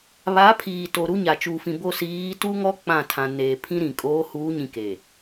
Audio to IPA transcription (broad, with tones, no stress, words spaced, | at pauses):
βa˨˦pʰiː˨to˨ ɾu˦ɲa˨ t͡ʃuː˨fĩ˨ bo˦˨ siː˨˦tu˦ŋɔ˦ k͡pã˦˨tʰã˨neː˨ pʰĩ˦ɾĩ˨ kʼoː˨˦huː˨˦ɲĩ˨ ke˨